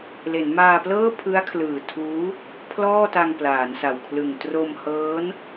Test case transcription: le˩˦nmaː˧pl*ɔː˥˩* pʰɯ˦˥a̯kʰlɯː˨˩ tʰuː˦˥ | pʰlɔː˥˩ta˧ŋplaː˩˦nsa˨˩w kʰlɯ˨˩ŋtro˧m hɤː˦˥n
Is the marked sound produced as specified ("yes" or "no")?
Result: no